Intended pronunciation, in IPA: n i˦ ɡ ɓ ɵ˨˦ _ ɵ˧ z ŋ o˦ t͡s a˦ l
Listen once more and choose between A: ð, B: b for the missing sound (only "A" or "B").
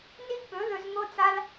A